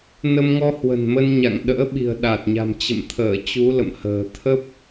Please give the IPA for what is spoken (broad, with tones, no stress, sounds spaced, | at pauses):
n ə˧ m ŋ ɔ˧ h w ə̤˨˩ n m ə˧ n ɲ a̰˧˨ ŋ ɗ ə̰ː˧˥ ɓ i̤˨˩ ə̯ ɗ a˨˩ t̚ ɲ a̤˨˩ m t͡ɕ ə̰˧˨ m t̪ʰ əː˧˩ t͡ɕ u˨˦ l ə̰˧˨ m h ə̤ː˨˩ t̪ʰ ə˦˥ p̚